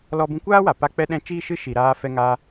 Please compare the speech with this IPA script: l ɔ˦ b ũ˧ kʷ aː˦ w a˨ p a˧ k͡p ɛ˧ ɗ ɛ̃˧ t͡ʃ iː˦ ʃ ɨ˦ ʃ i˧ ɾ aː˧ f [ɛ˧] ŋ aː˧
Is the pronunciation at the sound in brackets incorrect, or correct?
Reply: correct